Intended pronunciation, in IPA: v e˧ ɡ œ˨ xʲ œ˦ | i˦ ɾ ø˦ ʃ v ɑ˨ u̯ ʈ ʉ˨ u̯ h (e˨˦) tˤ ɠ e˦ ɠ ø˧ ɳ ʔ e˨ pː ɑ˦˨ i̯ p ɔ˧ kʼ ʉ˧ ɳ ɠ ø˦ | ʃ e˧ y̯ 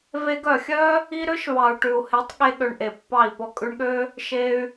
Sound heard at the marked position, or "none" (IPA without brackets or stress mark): e˨˦